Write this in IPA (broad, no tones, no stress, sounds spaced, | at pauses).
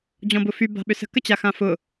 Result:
d͡ʑ ɔ̃ b ʊ f y b a̤ ɓ ʏ s ə̤ k ə t͡ɕ a x ã f ʊ